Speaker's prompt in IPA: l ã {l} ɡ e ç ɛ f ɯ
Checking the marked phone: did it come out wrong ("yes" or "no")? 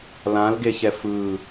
no